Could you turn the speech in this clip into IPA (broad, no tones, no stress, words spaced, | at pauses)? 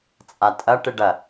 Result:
t͡sʼatʼɐ ʈɨɖɐ